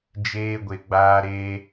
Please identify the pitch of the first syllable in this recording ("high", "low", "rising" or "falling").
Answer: high